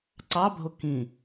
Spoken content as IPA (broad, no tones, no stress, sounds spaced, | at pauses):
ǀ ɑ bʱ o k ĩ